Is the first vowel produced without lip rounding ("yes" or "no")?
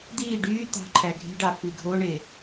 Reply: yes